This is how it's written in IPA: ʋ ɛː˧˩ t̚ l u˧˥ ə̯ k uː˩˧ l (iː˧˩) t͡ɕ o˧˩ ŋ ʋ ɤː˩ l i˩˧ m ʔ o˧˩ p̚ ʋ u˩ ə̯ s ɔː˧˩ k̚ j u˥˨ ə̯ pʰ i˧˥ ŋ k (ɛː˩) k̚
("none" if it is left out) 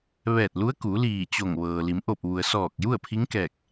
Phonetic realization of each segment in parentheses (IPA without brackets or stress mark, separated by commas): iː˧˩, ɛː˧˩